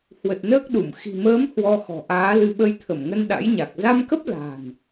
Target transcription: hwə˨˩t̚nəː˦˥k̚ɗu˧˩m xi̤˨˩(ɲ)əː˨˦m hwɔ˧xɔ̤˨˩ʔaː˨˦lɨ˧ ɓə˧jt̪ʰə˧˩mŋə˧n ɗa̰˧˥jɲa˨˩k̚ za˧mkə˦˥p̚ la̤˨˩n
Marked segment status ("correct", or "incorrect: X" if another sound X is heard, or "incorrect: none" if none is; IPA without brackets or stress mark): incorrect: m